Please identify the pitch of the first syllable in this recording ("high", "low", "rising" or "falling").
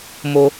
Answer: high